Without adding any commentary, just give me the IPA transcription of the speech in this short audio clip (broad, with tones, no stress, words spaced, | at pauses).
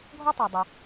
ɡʱɔ˥tˤɛ˨dˤʊ˨